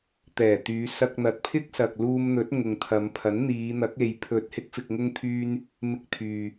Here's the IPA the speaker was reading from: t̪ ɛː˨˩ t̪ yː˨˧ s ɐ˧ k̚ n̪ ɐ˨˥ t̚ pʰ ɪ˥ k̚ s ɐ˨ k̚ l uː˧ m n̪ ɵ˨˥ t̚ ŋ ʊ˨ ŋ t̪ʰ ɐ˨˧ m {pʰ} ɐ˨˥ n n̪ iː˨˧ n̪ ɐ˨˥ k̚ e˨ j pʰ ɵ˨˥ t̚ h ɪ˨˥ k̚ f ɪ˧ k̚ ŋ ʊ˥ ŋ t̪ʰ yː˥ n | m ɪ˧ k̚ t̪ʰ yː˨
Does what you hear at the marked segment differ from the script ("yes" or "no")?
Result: no